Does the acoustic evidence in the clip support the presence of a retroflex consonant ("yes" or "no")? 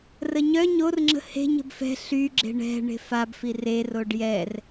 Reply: yes